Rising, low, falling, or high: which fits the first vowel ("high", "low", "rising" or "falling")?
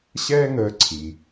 high